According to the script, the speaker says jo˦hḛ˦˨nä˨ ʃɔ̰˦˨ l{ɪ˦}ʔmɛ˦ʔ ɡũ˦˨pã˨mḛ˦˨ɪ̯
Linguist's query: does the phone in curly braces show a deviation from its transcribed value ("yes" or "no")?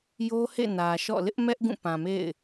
no